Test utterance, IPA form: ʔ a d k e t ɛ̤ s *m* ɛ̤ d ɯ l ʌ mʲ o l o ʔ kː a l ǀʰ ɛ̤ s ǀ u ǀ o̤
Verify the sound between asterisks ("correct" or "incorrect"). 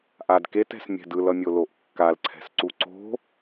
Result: incorrect